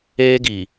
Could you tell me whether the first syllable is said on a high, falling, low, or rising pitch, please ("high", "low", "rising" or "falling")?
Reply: high